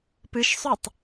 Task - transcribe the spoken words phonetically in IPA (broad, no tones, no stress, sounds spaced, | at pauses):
p ɨ ʃ sˤ ʉ tˤ